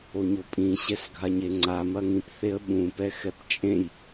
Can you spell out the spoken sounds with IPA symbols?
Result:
oɲopʼĩ ɕɛsɡʱaɲeŋ͡ǀa mɐŋĩp θeə̯ɓũ pɛxɛpt͡ʃʼẽj

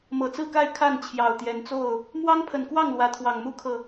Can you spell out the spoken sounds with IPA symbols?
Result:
mɤ˨˩t͡sɹ̩˥˨ka˥˨ɪ̯ kʰa˥˨nt͡ɕʰjɑ˨˩ʊ̯t̪jɛ˨˦nt͡so˥˨ʊ̯ | mwɑ˦ŋpʰə˨˩nkwɑ˥˨ŋ lwä˨˦t̪ʰwɑ˨˩ŋmu˦kʰɤ˨

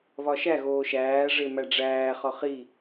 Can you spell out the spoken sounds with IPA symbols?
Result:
βɒʃæɣoː ʃæːʐe mæɖ͡ʐæːχɒ χi

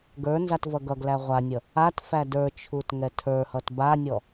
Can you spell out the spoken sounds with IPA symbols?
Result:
ɡə˞ nzatvʌɡʌɡlæ ʁʷanʲʌ | atfæ də˞t͡ʃʰut ŋɛtʰə˞hʌt banʲɔ

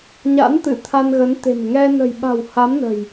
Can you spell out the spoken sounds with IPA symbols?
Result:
ɲa̰˧˥nt̪ɨ˧˩ t̪ʰa˧nɣə˨˦nt̪e̤˨˩m ŋɛ˧ nə̤˨˩jɓa̤˨˩w ha˨˦mnə̤˨˩j

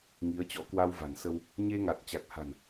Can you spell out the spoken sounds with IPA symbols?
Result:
ŋi˨˦ə̯ t͡ɕɔ̰˧˥ kwa˧wva̤˨˩nsə˧w | ɲe˧ŋa˨˩t̚ t͡ɕa˨˩k̚ha̤˨˩n

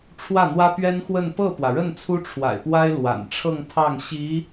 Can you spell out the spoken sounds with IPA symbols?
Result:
ʈ͡ʂʰwä˥˩n̪wä˥pɥɛ˥nxwə˥˧n pɤ˥˩pwä˩ɻə˥˩n t͡sʰu˥ʈ͡ʂʰwa̰˨˩ɪ̯pwa˥ɪ̯ lwa̰˨˩nʈ͡ʂʰɤ˥˧ŋpʰɑ˥˩ŋ ɕi˧˥

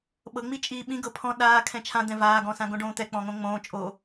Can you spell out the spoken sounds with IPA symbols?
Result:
ɓɤŋ͡mi t͡ʃʼiːɓĩ ɡɤpʰɔ̃ ɗaː kʰɛ̃t͡ʃʰãd̪ɛ̃ vaːɡɔ̃sãɡõ ɖõːt̪ɛk͡pɔ̃ ŋõŋ͡mõː t͡ʃʼo

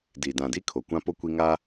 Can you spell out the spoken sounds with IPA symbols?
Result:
di˨dã˨di˦ kʰo˨kʷã˦po˦ kʷi˦ŋa˦

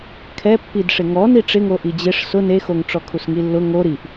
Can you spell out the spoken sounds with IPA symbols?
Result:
kʰɛ pːidʂɪŋɔ niʈ͡ʂɪŋo ʔid͡ʑɪʂ sʊ nexoŋʈ͡ʂɔkʰus ŋilːʊ ŋo ɾiʔ

